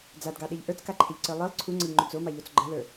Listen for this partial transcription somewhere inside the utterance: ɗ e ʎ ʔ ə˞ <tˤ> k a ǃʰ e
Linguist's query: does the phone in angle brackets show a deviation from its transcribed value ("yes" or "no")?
yes